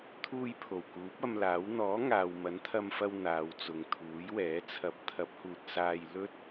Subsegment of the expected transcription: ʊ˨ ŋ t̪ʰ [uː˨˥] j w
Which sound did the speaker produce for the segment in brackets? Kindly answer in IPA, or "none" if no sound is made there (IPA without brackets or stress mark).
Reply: uː˨˥